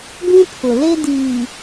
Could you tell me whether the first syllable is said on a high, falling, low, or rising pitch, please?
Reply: high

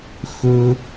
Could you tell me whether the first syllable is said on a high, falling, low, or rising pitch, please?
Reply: low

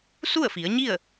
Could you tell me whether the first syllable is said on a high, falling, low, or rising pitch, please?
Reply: falling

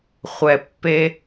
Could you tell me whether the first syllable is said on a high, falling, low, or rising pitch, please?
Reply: low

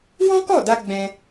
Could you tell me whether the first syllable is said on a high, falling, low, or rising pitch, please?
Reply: high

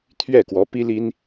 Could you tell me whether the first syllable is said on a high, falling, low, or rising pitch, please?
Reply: falling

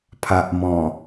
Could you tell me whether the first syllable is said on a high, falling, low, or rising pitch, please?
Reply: low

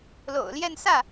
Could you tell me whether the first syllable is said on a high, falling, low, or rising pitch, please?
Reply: low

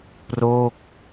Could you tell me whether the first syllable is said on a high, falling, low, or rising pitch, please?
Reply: falling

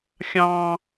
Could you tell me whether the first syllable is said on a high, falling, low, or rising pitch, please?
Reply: high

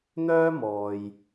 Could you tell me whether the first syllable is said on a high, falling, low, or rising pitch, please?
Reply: high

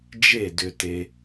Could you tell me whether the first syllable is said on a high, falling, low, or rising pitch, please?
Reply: falling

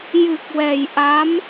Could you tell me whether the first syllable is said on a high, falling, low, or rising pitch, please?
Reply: low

